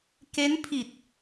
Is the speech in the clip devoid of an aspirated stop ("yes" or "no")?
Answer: no